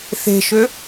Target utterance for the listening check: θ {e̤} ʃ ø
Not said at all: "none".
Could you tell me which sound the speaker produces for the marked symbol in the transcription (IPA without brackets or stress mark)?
e̤